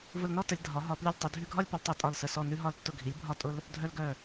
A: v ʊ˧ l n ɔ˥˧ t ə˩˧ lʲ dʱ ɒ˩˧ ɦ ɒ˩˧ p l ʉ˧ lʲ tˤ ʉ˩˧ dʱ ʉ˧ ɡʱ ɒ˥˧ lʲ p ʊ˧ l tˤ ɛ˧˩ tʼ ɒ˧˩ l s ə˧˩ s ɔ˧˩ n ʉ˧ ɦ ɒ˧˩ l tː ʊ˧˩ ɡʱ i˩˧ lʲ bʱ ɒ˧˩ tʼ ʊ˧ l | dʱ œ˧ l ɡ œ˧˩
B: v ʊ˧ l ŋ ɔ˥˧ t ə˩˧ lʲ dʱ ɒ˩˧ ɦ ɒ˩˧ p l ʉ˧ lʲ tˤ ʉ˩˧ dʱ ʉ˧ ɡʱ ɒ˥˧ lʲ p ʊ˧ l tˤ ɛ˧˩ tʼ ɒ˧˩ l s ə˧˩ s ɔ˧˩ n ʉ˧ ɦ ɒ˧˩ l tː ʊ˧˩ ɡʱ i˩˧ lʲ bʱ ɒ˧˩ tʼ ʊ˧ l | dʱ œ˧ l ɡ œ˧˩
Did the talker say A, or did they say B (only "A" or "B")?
A